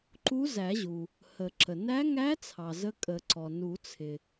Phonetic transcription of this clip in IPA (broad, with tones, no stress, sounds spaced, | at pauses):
ǃ u˧˥ z æ˨˩˦ ʑ u˩ | h ə˨˩˦ ǁ ə˩ n æ˧˥ ŋ æ˧˥ t͡sʰ ɑ˩ z ə˧˥ kʼ ə˨˩˦ ǀ ɔ˩ n u˨˩˦ t͡sʰ ɪ˩